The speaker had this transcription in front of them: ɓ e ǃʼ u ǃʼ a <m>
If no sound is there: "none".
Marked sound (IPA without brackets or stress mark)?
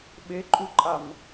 m